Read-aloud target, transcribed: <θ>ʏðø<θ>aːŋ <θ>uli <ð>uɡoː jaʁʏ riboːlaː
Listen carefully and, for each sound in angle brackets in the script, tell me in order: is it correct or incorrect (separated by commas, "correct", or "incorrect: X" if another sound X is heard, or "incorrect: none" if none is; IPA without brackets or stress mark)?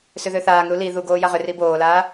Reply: incorrect: s, correct, incorrect: ɾ, correct